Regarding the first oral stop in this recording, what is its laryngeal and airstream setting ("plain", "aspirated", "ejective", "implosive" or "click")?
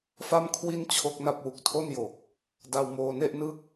aspirated